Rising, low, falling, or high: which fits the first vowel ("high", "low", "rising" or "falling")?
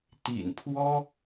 low